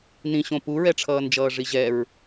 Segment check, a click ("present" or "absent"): absent